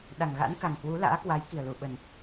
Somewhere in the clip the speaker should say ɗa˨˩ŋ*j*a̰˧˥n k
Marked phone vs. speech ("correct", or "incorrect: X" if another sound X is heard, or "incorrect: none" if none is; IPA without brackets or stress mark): incorrect: ɣ